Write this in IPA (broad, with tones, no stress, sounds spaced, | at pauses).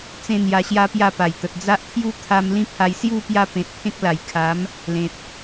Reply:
t͡s ẽ˦ n̪ j a˧ ɕ j a˦ p j a˥˧ p a˨˩ j t̪ ə˨ t̚ d͡z a˦ ʔ t̪ʰ j u˦ t̪ʰ a˧ m l ĩ˦ pʰ a˧ j s j u˥˧ p j a˥˧ p ẽ˨ t̚ pʰ ẽ˦ k̚ l a˨˩ j kʰ a˨˦ m | l ẽ˨ t̚